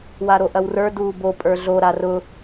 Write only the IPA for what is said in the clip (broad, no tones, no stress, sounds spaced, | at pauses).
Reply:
w a ɾ o ʔ ɐ w r ə˞ d uː b o pʼ ə˞ ɮ o ɾ a r ʊ